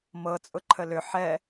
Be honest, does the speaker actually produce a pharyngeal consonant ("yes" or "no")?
yes